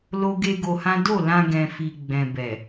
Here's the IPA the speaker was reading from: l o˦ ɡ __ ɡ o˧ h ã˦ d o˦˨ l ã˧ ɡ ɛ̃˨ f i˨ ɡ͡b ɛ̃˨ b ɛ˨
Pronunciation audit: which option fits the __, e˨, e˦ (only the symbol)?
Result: e˦